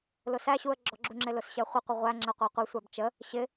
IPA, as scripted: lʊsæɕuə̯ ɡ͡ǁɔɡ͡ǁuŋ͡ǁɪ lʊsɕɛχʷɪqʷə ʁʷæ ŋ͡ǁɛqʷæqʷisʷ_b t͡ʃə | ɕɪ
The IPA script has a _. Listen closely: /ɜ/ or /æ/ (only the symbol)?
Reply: æ